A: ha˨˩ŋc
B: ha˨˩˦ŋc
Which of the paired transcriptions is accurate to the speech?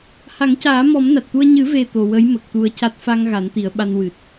B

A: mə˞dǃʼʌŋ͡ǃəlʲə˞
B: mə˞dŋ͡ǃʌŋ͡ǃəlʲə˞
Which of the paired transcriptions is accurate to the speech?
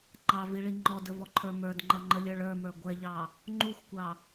B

